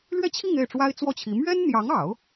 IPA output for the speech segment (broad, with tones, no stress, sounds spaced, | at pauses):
l ɥ ɛ˥˧ t͡ɕʰ i˥˧ ŋ e˥˩ ɪ̯ ʈ͡ʂ w a˥ ɪ̯ t͡s w ɔ˥˩ t͡ɕʰ i˧˥ m ɥ ɛ˥ n n̪ j ɑ˧˥ ŋ ɑ˨˩˦ ʊ̯